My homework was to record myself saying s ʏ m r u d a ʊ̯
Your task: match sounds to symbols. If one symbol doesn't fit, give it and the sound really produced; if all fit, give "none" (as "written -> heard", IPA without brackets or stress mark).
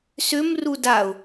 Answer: none